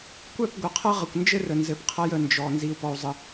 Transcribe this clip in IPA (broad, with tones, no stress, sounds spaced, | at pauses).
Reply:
kʷ œ˦˨ p ɡʷ ə˨ qʰ ɐ˦ ʁ ə˨ kʷ n d͡ʒ ɘ˦ r ə˨ n z ɘ˨ p qʰ ɐ˦ j ə˨ n d͡ʒ ɔ˨ n z i˦ u̯ p ɔ˦ u̯ zˤ ə˦